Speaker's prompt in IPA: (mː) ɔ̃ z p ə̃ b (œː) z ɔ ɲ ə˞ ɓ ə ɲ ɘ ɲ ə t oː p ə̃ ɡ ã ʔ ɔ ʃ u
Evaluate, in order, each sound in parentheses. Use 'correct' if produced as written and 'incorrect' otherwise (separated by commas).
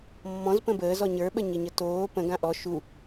correct, incorrect